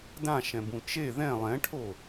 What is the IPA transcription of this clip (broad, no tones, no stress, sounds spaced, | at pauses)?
d ã ʃ ɛ̃ b ũ t͡ʃ e ð ɛ̃ lˠ ɛ̃ ʈʰ o